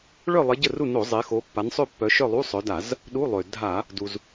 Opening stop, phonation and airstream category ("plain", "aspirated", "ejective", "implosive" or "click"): plain